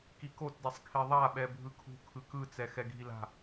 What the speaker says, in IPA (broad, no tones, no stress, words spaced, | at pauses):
kikotdɛsˤkʰe ðˤaɓɛ bʱɯkʰṳ kʰɯkɯt͡sɛ xɛɡʱila̤